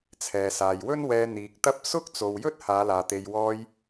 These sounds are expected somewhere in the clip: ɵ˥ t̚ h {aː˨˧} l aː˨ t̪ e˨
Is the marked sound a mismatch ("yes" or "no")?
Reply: no